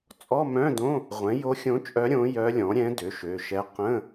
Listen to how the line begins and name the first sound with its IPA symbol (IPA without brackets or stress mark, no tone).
t͡sʼ